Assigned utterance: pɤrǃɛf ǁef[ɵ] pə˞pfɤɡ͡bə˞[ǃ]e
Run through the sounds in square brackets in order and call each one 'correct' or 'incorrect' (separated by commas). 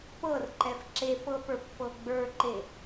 incorrect, correct